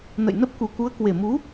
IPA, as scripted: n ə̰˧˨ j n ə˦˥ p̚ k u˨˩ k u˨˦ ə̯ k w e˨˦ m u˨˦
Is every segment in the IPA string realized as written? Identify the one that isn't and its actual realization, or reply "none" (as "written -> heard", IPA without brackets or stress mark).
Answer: e˨˦ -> e˨˩